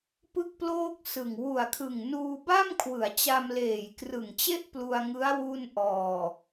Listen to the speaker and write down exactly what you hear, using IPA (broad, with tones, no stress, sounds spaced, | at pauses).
p ɯ˥˩ k̚ p l oː˥˩ k̚ s ɯ˨˩ ŋ w u˨˩ a̯ kʰ ɯ˨˩ ŋ n uː˧ b a˥˩ m kʰ w ɯ˩˦ a̯ t͡ɕ a˧ m l eː˨˩ j k r ɯ˨˩ ŋ t͡ɕ e˥˩ ʔ p l u˧ a̯ ŋ ɯ˦˥ a̯ w u˥˩ n ʔ ɔː˨˩